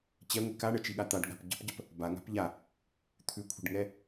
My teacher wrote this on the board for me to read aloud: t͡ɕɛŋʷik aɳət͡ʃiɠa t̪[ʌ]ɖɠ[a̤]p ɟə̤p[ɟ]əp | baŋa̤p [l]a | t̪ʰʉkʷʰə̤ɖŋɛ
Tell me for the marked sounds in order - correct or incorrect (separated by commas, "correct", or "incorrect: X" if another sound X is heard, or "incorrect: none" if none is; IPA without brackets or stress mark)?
incorrect: a, correct, correct, incorrect: ʎ